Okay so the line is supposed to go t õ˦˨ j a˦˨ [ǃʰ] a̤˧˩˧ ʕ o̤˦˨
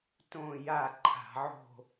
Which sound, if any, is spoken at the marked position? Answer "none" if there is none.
ǃʰ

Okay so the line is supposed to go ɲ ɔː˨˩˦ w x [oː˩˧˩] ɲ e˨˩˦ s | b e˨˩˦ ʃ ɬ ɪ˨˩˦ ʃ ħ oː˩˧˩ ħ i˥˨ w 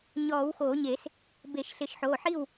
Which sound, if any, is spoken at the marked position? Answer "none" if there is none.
oː˨˩˦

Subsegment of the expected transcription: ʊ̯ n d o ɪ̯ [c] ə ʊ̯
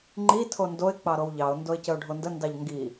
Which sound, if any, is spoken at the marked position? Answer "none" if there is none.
c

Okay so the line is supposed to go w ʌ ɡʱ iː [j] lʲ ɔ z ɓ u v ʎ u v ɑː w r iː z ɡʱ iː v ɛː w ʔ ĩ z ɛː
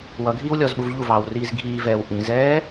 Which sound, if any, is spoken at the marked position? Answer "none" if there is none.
w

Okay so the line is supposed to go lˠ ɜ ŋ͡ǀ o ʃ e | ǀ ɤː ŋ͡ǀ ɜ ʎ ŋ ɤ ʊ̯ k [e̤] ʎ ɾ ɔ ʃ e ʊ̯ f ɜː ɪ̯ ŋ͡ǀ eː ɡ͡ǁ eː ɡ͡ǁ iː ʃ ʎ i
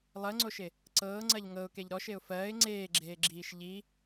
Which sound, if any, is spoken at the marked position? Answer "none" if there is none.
e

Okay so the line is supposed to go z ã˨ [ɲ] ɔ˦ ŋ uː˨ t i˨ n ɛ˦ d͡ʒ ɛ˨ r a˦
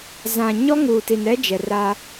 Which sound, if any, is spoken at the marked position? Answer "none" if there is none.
ɲ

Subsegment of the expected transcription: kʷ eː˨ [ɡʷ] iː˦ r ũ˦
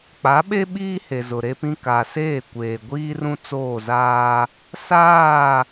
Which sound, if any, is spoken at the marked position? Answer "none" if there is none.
ɡʷ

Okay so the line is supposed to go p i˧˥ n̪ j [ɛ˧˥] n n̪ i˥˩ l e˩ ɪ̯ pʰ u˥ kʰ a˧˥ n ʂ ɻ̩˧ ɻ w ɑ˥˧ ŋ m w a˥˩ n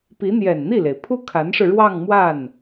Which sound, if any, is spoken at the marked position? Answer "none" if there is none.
ɛ˨˩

